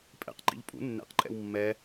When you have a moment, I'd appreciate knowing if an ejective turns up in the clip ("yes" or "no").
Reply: yes